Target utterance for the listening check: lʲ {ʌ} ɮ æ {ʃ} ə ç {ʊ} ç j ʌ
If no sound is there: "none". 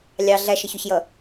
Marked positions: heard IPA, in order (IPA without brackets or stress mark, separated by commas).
ɑ, ʃ, ʊ